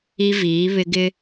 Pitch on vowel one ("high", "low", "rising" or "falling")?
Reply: high